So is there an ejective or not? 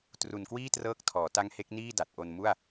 no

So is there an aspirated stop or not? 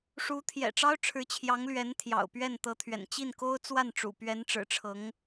yes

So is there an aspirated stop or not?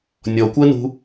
no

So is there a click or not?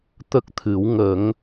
no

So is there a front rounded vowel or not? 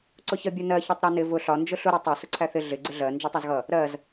no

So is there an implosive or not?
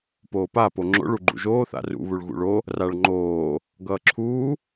no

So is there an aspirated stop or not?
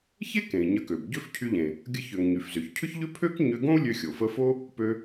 yes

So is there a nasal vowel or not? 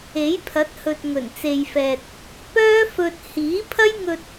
no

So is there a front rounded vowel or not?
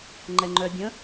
yes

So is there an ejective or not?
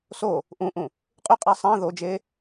yes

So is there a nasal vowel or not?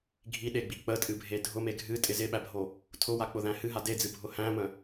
yes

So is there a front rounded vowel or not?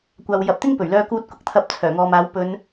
yes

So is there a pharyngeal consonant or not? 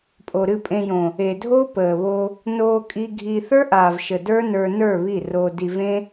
no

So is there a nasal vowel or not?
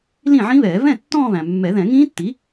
yes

